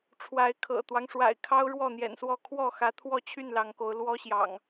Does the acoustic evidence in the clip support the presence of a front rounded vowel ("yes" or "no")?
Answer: yes